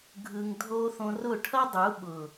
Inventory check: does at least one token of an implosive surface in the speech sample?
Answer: yes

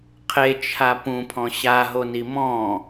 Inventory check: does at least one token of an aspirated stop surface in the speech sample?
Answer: yes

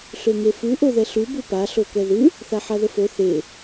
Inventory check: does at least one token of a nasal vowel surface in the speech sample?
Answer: no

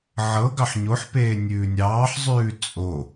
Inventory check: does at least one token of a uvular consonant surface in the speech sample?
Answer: no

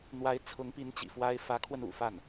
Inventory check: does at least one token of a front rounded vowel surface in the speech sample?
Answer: no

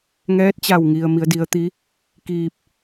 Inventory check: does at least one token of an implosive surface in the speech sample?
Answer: no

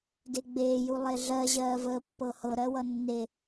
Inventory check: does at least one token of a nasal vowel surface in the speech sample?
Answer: no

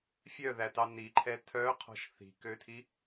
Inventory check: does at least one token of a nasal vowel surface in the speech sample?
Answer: no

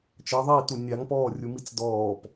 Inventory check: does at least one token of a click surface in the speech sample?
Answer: no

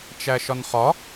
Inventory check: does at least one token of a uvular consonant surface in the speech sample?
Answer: yes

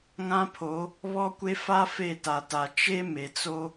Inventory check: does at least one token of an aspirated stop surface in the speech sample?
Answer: yes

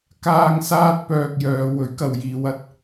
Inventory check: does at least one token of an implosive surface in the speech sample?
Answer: no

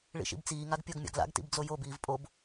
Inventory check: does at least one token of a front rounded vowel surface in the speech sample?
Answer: no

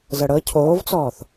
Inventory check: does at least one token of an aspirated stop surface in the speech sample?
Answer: yes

